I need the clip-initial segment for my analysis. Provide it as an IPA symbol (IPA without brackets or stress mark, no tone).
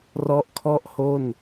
r